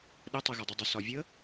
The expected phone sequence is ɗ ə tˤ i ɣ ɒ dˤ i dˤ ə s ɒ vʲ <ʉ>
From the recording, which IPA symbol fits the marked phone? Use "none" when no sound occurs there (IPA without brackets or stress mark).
ə